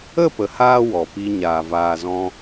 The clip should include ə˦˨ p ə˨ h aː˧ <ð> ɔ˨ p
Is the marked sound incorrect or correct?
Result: incorrect: w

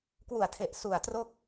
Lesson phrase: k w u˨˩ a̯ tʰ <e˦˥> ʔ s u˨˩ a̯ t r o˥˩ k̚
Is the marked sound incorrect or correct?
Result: incorrect: e˨˩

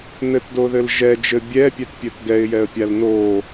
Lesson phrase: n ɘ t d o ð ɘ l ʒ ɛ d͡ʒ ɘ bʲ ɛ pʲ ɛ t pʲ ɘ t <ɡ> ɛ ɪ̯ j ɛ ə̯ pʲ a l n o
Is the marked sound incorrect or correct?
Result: correct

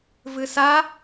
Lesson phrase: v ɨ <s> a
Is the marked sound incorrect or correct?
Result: correct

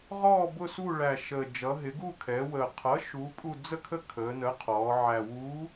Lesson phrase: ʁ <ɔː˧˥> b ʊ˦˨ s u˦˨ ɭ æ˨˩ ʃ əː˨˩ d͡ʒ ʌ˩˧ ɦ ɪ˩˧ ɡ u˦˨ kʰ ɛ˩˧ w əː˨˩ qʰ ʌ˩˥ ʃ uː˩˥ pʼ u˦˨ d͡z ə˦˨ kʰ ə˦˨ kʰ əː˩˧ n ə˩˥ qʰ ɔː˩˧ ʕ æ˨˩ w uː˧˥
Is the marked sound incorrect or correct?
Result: incorrect: ɔː˦˨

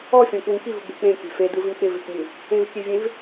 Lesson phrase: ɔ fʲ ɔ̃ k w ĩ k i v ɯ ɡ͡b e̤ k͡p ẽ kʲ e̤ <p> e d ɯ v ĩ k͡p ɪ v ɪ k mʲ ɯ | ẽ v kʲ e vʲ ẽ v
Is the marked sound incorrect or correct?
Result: incorrect: f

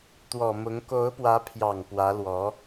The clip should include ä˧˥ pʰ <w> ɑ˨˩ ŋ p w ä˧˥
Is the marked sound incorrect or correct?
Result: incorrect: j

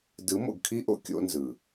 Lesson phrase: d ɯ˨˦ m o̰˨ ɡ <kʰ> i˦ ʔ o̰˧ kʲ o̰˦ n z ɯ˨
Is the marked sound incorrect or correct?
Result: correct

